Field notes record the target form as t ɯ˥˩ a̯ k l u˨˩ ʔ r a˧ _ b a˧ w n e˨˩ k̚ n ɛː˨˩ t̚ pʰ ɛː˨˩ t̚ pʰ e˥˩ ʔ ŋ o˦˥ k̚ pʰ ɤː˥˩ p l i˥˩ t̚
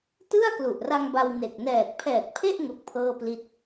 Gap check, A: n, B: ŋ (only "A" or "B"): B